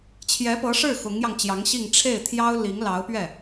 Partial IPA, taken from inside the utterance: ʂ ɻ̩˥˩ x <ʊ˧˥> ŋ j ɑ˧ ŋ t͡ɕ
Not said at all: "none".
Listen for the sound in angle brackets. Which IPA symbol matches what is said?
ʊ˧˥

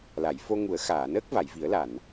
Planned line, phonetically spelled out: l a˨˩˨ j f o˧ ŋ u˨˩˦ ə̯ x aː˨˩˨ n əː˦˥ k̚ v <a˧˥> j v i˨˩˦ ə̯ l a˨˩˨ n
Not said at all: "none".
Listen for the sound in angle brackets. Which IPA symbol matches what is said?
a˨˩˨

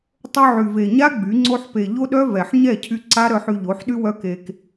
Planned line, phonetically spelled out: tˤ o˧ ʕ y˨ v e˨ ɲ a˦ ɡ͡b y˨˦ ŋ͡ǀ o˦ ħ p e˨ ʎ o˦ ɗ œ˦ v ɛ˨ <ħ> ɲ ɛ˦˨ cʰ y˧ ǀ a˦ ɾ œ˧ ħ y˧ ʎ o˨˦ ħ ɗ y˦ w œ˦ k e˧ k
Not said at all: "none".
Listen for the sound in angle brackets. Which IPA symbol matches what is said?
ħ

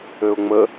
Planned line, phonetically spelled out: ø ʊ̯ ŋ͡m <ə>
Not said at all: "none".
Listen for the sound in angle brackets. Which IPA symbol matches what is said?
ə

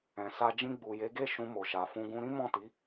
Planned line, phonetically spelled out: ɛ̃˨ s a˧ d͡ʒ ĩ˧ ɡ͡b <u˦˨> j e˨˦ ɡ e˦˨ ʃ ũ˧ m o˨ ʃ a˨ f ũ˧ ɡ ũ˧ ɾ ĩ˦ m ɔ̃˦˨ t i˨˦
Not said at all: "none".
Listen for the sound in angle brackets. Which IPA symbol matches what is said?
u˨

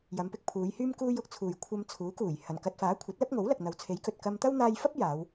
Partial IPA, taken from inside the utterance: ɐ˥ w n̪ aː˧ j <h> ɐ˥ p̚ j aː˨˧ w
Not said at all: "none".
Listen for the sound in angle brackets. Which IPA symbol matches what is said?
f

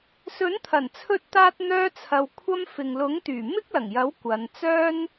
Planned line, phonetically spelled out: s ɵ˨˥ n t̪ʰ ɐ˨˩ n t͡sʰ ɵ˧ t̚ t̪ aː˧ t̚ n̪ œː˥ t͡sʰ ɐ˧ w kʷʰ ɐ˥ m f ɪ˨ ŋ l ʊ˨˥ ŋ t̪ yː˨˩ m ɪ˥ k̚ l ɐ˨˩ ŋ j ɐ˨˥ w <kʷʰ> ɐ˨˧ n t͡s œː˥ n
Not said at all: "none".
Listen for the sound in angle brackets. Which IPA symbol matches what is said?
kʷ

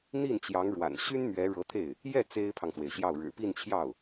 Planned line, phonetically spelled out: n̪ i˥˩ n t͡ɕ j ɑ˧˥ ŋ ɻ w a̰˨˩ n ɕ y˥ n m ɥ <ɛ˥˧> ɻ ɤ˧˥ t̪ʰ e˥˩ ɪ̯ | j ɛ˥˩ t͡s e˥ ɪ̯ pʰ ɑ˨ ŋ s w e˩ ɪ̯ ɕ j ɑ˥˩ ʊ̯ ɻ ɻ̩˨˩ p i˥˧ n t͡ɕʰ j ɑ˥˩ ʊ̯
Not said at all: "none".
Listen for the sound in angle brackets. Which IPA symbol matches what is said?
ɛ˧˥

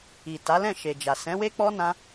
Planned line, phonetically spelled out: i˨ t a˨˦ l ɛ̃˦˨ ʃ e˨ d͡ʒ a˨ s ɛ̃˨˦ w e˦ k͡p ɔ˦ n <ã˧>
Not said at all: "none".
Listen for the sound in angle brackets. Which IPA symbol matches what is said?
ã˦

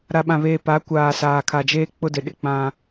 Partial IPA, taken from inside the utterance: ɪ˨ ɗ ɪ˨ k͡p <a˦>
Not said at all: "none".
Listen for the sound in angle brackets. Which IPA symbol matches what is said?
ã˦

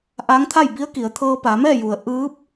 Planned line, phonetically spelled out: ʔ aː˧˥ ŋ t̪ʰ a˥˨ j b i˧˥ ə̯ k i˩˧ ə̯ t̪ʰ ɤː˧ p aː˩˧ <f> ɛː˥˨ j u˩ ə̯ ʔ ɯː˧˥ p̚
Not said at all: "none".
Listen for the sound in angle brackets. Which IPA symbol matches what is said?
m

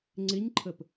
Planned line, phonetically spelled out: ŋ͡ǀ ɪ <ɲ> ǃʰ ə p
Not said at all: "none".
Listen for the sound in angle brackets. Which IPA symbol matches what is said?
ɲ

